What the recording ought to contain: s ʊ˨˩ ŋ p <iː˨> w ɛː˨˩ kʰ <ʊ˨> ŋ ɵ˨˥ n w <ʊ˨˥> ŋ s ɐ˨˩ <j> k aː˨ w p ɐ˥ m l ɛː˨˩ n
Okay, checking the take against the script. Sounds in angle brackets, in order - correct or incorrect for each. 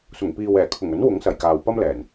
correct, incorrect: ʊ˨˩, correct, correct

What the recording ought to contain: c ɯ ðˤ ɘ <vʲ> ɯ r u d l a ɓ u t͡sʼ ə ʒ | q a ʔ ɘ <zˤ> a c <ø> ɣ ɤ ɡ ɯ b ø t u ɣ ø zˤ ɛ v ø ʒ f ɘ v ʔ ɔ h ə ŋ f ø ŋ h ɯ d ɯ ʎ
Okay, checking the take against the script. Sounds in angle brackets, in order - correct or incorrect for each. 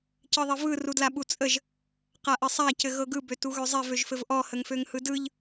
incorrect: v, incorrect: sˤ, incorrect: ɘ

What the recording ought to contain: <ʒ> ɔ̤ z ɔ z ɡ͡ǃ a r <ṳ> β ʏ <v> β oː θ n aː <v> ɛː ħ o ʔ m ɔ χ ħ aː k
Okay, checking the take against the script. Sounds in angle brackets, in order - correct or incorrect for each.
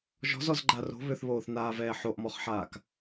correct, incorrect: o̤, incorrect: θ, correct

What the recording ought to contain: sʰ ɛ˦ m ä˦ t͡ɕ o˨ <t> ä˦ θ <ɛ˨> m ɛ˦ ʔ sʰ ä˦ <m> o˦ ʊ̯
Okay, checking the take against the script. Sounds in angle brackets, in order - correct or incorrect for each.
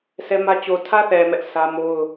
incorrect: tʰ, correct, correct

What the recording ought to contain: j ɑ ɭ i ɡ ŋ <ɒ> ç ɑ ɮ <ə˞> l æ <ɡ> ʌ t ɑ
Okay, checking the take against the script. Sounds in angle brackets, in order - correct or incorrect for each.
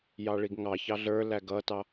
incorrect: ɑ, correct, correct

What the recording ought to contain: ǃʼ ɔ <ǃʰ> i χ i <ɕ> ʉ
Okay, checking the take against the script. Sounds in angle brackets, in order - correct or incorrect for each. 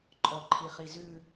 correct, incorrect: z

